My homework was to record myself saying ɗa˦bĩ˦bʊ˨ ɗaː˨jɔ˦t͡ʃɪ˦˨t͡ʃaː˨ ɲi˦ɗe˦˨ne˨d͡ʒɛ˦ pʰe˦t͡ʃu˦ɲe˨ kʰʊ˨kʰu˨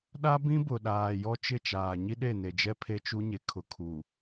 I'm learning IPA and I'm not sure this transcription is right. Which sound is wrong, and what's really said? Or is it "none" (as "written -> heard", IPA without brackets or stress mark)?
none